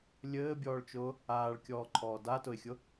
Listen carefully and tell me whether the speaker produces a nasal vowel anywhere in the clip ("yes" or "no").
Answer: no